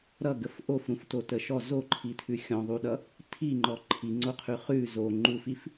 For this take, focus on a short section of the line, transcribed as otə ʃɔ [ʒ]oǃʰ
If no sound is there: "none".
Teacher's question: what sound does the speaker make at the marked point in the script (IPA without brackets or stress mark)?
z